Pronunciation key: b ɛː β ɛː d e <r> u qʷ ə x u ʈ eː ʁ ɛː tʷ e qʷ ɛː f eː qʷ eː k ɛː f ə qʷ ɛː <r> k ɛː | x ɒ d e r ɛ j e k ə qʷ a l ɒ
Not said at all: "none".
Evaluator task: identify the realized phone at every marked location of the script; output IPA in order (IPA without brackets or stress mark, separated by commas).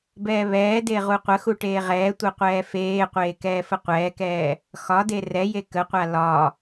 ʁ, none